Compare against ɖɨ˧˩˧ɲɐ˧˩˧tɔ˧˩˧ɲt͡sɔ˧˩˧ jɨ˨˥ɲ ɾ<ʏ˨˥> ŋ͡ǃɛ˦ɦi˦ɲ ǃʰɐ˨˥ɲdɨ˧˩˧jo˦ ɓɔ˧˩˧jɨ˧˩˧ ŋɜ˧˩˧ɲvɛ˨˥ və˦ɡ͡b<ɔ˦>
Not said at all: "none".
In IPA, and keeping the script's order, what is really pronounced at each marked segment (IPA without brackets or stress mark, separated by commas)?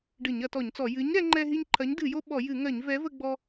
ɛ˨˥, ɔ˦